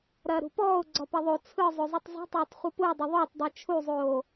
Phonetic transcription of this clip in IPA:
ɾ ɐː ɾ ṳ p ɔː ʊ̯ ɡ͡ǀ ɒ p ɐ ðˤ o t͡sʰ ɯ zˤ o zˤ u tˤ zˤ ṳ tˤ oː tˤ χʷ ɯ p u ə̯ dˤ ʊ ðˤ o tˤ dˤ e t͡ʃʰ u zˤ oː

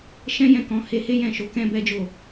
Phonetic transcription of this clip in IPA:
ʃ ɛ̃˦ j ɛ̃˦˨ k ɔ̃˨˦ h e˧ h e˦ j ɛ̃˦˨ ʃ o˨˦ k ɛ̃˦ b ɛ˦ d͡ʒ o˦˨

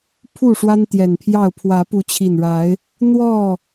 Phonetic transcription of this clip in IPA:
pʰ u˥˨ ʂ w a˦ n t̪ j ɛ˨˩ n pʰ j ɑ˥˨ ʊ̯ pʰ w ä˨˦ p u˨˦ t͡ɕʰ i˨˩ n ɻ a˨˦ ɪ̯ | n̪ w ɔ˥˨

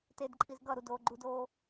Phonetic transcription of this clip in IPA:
t e d ǃʼ i z ɡ ʌ ɾ u d oː ɡ͡ǃ u d oː

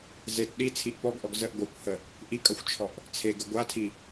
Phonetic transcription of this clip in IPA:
z e t ɗ i t͡sʰ i ʔ p ɔ ɡ ʔ ɔ ɡ z ə ʔ ɡʷ a kʷ h ə | ʔ i kʼ ʌ xʷ t͡ʃʰ ɔ ʔ | t͡sʰ e ɡ ə ɡʷ a tʰ i

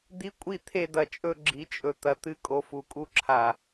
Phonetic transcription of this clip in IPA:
d̪ i˦ kʷʼ i˦˨ t̪ʰ e˧ d̪ ɐ˨ t͡ʃʼ ɵ˧ ɡ͡ǁ i˨˦ t͡ʃʼ ɵ˨ t̪ ɐ˨ t̪ ɨ˧ kʼ o˨ f u˨ kʼ u˧ ǁʰ a˨

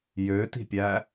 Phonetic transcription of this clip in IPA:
j ø t i̤ pʲ æ

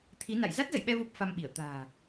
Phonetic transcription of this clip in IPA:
t̪ʰ i˨˦ n a̰˧˨ j z a˦˥ t̚ z ə̰˧˨ j ɓ ɛ˧ v o˦˥ p̚ f a˧ m ɓ i˧˩ ə̯ t̪ a̤ː˨˩

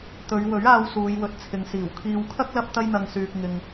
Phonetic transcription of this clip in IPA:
t̪ ɵ˨˧ ɥ w ɵ˨˥ ɥ aː˧ w s uː˨˧ j w ɵ˨˥ t̚ t͡sʰ ɪ˨ ŋ s iː˨˩ w kʰ iː˨ w kʰ ɐ˥ k̚ l ɐ˥ p̚ t̪ ɐ˥ j n̪ ɐ˧ ŋ s yː˨ k̚ ŋ ɪ˨ ŋ

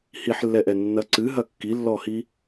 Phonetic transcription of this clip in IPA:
h i ħ lː ɛ ʔ ɛ nː ɐ ǀ ɨ ɦ ɐ kː i lː ɔ h i

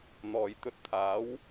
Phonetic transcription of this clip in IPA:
n̪ ɔː˨ j t̪ ɵ˧ t̚ t̪ʰ aː˨˥ w

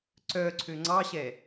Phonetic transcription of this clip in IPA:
ǀ œ ǀʰ ø ŋ͡ǀ ɑ ɕ ɛ

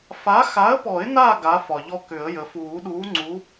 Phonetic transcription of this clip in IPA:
f a˨˥ x a˨˥ ə̯ p ɔ˨˩˦ ɪ̯ n a˦˨ ɡ a˨˥ f ɒ˩ ʎ ɔ˦ k ʏ˨˩˦ ə̯ j ə˩ f uː˨˩˦ ɗ uː˨˥ ŋ͡ǀ u˨˥

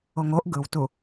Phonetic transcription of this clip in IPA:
o ŋ o ʔ ɡ ɯ w t u

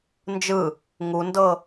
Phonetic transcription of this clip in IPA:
n d͡ʒ ɯ | ŋ u n d ɤ

